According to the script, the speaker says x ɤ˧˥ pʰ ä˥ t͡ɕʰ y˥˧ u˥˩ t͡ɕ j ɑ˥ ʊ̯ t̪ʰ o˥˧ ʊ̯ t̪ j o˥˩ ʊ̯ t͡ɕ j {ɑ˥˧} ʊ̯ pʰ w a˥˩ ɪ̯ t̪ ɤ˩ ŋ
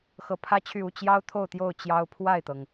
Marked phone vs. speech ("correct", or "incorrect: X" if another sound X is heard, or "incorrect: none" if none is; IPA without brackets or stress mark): incorrect: ɑ˥